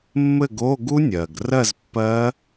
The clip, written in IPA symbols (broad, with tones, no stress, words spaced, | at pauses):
mːɘ˥˨ɡo˧˥˧ ɡu˦˥nʲɜ˩ɡrɜ˥˨z pːɜ˦˥